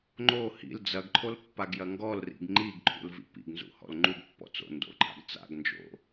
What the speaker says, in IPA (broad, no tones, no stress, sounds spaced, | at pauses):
ŋ͡ǃ o h ḭ l d͡z ɐ ɡ ǃʰ o l pː a ɡ j ɐ ŋ ɡ ɔ l r ḭ ɡ ŋ͡ǃ i ɡ ǃʰ ṵ l v ḭ p ḭ ɡ n z ṵ h ɔ̰ l ŋ͡ǃ u ɡ pː ɔ̰ t͡s o̰ n d o̰ ǃʰ a̰ ɡ t͡s a̰ ɡ n d͡ʒ o̰